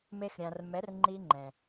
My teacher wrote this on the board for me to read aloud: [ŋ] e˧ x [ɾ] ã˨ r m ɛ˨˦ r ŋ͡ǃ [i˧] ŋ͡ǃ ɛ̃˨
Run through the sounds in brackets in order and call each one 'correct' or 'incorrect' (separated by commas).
incorrect, incorrect, correct